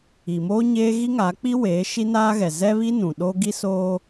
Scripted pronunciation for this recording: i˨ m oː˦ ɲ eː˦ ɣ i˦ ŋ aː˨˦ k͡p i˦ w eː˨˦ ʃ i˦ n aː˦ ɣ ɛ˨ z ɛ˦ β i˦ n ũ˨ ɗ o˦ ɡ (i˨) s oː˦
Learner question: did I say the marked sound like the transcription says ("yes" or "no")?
no